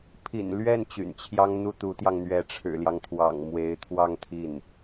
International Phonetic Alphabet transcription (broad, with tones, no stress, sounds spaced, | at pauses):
pʰ ḭ˨˩ n l ɥ ɛ˥˩ n t͡ɕ y̰˨˩ n t͡ɕʰ j ɑ˥ ŋ n̪ u˥ t̪ u˧˥ t̪ j ɑ˧ ŋ n̪ ɥ ɛ˧˥ ʈ͡ʂʰ ɻ̩˨˩ l j ɑ˦ ŋ t̪ʰ w ɑ̰˨˩ ŋ m w e˧˥ ɪ̯ t̪ʰ w ɑ˥˧ ŋ t̪ʰ i˥˩ n